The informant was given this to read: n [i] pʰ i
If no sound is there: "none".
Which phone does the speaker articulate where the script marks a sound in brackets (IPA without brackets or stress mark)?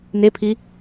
e